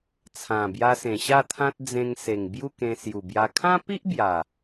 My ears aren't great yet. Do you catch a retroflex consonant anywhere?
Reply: no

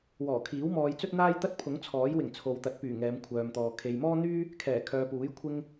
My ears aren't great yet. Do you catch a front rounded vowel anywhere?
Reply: yes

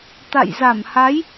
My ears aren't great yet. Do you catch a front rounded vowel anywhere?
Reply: no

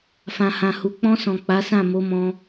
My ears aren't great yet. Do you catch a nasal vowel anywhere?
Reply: yes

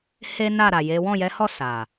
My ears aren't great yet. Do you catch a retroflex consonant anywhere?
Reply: no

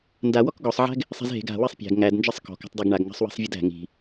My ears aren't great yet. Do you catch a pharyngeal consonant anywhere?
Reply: yes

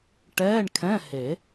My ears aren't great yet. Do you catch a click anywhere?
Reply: no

